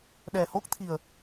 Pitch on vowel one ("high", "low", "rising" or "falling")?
low